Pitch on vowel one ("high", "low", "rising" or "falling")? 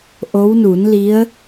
rising